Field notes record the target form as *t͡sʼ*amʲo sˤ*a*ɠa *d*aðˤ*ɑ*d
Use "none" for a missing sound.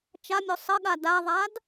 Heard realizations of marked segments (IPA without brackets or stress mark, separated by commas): t͡ʃ, ə, d, a